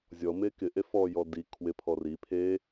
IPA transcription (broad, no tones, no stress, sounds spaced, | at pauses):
zʲ ɔ m e k ɪ ʔ e f ɔ j ɔ d i kʰ w ɪ pʰ ɔ r i pʰ e